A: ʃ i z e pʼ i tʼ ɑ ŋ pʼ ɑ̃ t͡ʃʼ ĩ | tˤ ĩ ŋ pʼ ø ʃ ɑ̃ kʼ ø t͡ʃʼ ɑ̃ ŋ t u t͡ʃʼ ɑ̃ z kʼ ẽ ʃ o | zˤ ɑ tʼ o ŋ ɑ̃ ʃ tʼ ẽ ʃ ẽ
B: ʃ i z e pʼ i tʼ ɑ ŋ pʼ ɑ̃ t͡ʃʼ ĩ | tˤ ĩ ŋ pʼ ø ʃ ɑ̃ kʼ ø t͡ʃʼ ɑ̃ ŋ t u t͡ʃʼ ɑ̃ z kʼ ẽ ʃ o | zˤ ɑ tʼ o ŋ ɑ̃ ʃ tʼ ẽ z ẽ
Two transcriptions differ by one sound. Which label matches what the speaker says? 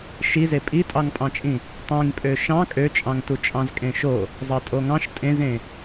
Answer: B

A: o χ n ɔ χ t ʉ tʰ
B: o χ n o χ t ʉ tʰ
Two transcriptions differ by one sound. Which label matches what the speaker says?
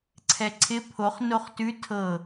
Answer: B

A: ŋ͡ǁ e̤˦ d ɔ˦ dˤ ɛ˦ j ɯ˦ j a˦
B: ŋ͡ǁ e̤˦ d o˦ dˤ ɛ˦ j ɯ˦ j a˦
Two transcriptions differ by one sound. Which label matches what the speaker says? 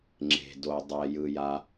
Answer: B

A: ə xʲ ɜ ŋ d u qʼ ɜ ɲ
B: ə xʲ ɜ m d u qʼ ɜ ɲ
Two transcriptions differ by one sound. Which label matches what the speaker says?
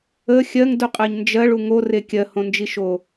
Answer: A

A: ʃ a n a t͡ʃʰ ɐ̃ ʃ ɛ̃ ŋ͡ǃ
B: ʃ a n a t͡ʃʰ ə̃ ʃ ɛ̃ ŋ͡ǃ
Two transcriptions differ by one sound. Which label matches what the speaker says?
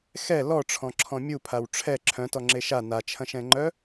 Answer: A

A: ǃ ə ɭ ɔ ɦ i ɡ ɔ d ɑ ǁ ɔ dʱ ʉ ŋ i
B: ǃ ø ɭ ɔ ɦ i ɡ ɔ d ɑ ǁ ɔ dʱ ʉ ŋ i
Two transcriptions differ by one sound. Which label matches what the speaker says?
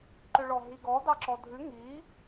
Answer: B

